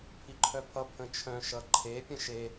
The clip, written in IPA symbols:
pʰ i ǃʰ œ pʰ ʌ pʰ ə̃ t͡ʃʰ œ̃ ʃ ʌ ǃʰ e pʲ ə̃ ʃ e

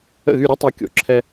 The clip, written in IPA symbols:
ə̰˥˩ ɣ y˥˩ ɾʲ ɛ˥ tˤ y˩˥ kʲ o̰˩ ǁʰ ɛ˧

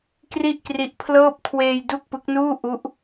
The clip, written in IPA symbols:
k r i˥˩ ʔ k r i˦˥ ʔ pʰ l ɤː˥˩ p̚ kʰ w eː˧ j d u˥˩ k̚ p ɯ˦˥ k̚ n uː˥˩ ʔ u˦˥ ʔ

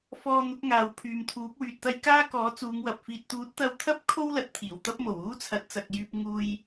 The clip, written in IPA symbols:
f ɔː˧ n̪ ʊ˨˥ k̚ ŋ aː˨ w pʰ yː˨ m t̪ʰ uː˨˥ p̚ w yː˨ t̚ t̪ ɐ˥ j k aː˥ k ɔː˨˥ t͡s uː˨˧ ŋ w ɐ˨ p̚ f iː˨ t̚ t̪ uː˨˥ t̚ t̪ ɐ˧ w t̪ʰ ɐ˥ p̚ kʰ o˥ w l ɐ˨ t̚ t̪ʰ iː˨˩ w t̪ ɐ˥ p̚ m o˨˩ w uː˥ t͡sʰ ɐ˨˥ t̚ t͡s ɐ˨ k̚ j yː˧ p̚ ŋ uː˧ j

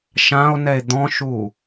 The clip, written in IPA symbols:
ʃ ã o̯ n ɛ e̯ d̪ ɔ̃ ʃ u

